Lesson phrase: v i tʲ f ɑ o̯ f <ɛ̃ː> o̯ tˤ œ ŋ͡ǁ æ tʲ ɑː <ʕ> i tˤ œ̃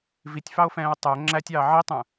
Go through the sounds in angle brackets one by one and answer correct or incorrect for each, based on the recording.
correct, correct

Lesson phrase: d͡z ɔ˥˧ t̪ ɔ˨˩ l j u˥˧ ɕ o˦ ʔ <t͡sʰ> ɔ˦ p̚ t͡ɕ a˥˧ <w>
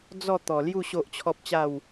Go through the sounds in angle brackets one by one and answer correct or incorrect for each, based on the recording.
incorrect, correct

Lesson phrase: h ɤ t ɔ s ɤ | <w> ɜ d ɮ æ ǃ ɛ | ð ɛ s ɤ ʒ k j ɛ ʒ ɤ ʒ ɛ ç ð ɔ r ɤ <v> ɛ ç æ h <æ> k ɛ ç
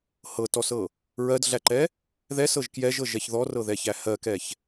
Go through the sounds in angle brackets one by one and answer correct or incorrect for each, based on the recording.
incorrect, incorrect, incorrect

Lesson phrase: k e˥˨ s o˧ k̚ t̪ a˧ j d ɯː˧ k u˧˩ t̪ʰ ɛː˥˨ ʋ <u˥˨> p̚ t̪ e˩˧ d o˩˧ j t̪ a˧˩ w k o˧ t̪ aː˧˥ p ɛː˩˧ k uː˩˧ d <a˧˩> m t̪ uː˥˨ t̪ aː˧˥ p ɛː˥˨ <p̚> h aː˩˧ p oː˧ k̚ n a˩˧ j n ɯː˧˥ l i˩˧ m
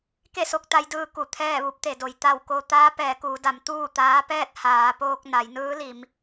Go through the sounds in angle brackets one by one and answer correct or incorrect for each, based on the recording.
incorrect, incorrect, incorrect

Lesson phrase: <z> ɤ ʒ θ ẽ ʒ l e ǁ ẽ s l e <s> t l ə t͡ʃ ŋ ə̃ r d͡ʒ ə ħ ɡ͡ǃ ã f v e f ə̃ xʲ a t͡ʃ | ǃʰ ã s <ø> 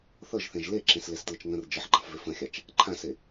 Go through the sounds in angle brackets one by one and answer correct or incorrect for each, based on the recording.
incorrect, correct, incorrect

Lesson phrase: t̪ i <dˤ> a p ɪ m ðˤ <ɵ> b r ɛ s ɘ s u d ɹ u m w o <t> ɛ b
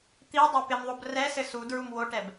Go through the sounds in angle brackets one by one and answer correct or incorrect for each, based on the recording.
correct, incorrect, incorrect

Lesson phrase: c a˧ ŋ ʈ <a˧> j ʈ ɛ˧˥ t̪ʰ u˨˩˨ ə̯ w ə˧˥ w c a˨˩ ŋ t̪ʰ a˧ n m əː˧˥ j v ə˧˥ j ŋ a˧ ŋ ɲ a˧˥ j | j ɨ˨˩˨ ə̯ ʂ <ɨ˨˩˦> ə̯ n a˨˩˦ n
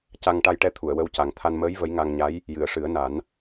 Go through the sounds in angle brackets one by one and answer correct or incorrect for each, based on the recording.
correct, correct

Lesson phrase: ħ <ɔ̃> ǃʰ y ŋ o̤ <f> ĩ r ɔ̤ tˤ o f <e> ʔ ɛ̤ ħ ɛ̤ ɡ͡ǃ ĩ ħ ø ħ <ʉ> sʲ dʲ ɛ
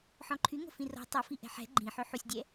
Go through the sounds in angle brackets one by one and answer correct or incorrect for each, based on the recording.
correct, correct, incorrect, incorrect

